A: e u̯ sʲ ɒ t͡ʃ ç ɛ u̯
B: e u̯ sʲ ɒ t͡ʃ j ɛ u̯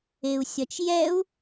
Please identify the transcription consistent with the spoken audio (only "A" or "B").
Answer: B